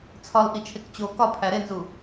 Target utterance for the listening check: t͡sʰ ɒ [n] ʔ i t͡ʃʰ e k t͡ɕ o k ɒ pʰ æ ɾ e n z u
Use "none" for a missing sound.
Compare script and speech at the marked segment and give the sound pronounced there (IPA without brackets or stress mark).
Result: l